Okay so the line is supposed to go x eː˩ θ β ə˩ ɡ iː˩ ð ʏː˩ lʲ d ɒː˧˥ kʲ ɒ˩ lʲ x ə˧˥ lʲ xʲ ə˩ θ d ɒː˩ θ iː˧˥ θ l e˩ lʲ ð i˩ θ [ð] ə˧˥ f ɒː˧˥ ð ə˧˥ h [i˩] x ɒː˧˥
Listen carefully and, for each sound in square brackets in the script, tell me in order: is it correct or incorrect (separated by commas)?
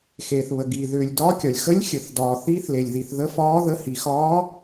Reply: correct, correct